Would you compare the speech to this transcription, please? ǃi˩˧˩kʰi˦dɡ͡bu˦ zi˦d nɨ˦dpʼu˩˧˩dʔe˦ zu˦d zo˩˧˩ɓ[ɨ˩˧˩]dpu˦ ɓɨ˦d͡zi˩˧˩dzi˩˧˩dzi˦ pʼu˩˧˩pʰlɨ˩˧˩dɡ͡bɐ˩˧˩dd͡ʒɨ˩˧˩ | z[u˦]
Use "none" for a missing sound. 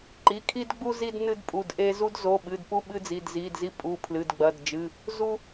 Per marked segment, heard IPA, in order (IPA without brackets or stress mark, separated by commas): ɨ˩˧˩, u˦